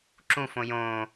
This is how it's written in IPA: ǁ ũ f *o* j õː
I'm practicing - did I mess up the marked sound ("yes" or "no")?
yes